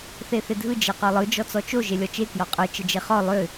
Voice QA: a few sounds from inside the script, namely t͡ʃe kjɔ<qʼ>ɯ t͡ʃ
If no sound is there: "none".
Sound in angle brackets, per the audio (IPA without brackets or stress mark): qʼ